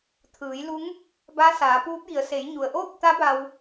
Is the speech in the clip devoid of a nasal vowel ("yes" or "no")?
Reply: yes